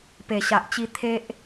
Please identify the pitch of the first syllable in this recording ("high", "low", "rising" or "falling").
low